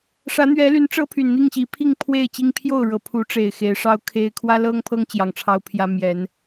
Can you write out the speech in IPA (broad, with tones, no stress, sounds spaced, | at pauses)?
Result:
ʂ ä˨˦ n̪ ɥ ɛ˨˦ l y˨˦ n ʈ͡ʂ ɤ˦ pʰ y˨˩ n n̪ i˥˨ ŋ ɕ i˨˦ pʰ i˥˨ ŋ pʰ w e˥˨ ɪ̯ t͡ɕ i˦ ŋ pʰ j o˥˨ ʊ̯ ɻ ɤ˨˩ pʰ u˨˦ ʈ͡ʂ e˨˩ ɪ̯ x e˨˦ ɪ̯ ʂ ɑ˦ ʊ̯ kʰ e˦ ɪ̯ kʰ w ä˦ l ɤ˦ ŋ pʰ ɤ˦ ŋ t͡ɕ j ɑ˨˩ ŋ ʈ͡ʂʰ ɑ˦ ʊ̯ pʰ j ä˦ m j ɛ˨˦ n